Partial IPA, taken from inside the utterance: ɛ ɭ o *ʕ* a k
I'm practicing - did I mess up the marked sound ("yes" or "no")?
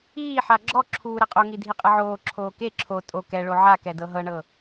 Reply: no